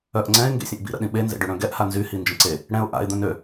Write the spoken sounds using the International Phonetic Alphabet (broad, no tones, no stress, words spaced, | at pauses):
œʔ ŋ͡ǀɛ̃ɪ̯ ŋɡḛsʲə̃ʔbḭ ɾə̰ɗĩɓe nzḛɖøɽœ̃ɡɛʔ hanzy hind͡ʒə̃ǀe | ɽɛ̃ʊ̯ ʔa̰ɪ̯ d̪œ̃nø